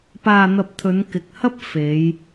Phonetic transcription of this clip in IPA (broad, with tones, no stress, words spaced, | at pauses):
paː˧n̪ɐ˧p̚t̪ʰɵ˨˧n kɪ˨k̚hɐ˥p̚ fe˨˧j